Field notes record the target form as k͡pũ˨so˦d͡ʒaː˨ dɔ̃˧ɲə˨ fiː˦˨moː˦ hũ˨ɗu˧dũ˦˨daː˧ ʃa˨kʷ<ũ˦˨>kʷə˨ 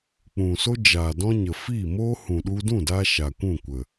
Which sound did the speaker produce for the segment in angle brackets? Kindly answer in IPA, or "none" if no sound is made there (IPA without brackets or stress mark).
ũ˦˨